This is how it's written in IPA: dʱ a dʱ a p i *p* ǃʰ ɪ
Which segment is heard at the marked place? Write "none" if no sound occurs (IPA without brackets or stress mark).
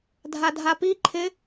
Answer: none